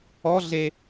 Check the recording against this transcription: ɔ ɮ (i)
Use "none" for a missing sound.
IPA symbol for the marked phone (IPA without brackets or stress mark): e